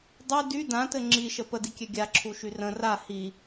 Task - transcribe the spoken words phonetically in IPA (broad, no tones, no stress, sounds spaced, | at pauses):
dˤ ʉ d y d ã t ɘ ŋ͡ǁ i ʃ ə p ə d i kʲ ɛ ɡʲ a ǁʰ u ʃ y r ə̃ r a h i